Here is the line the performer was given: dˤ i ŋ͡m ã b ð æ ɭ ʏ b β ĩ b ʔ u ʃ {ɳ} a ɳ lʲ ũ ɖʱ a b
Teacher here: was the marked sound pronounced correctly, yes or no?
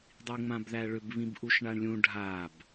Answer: yes